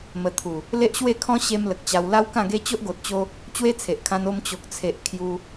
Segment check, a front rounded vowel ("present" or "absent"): absent